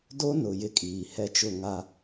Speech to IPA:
d o˦ n ʊ˨ j ɪ˦ kʼ iː˨ h ɛ˦ t͡ʃ ʊ˦˨ ŋ a˨

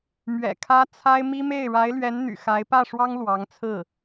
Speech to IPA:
m ɥ ɛ̰˨˩ kʰ ä˧˥ t͡sʰ a˥ ɪ̯ m i˥ m e˥˩ ɪ̯ ɻ a˧˥ ɪ̯ l ɥ ɛ˧˥ n n̪ y̰˨˩ x a˧˥ ɪ̯ p ä˥˩ ʂ w ɑ˥ ŋ l w ɑ˧˥ ŋ t͡sʰ ɹ̩˥˩

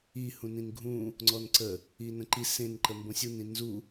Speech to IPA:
i h ũ n ĩ n ɡʱ ũ | ŋ͡ǀ ɔ n ǀ ə | i n ə̃ ǃ i s ẽ n ǃ ə m b õ sʲ u n ĩ n z u

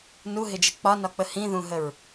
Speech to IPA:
n u ɦ ɪ d͡ʒ ə k͡p ɒ n ɒ k͡p ə h ĩ ð ũ ɦ ə ɹ

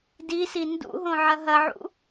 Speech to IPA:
d i s i n d ṵ ɦ õ ʕ ɐ ɦ ɐ ʕ ṵ

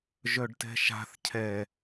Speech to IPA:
ʒ œ ɖ t ɛ̤ ʃ a̤ θ cʰ ɛ

